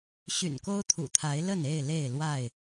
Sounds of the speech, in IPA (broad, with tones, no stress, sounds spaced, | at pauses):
ɕ y̰˨˩ n k o˦ ʊ̯ t̪ʰ ṵ˨˩ t̪ʰ a˨˦ ɪ̯ l ə˥˨ n e˥˨ ɪ̯ l e˥˨ ɪ̯ l w a˥˨ ɪ̯